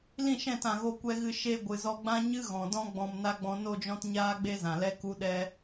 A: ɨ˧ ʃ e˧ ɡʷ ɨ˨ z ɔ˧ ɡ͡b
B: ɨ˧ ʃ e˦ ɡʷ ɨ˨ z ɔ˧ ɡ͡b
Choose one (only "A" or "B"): A